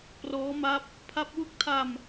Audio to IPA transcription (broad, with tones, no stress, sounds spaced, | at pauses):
p r ɔː˦˥ m a˦˥ p̚ | pʰ a˦˥ p̚ w u˥˩ k̚ tʰ a˧ m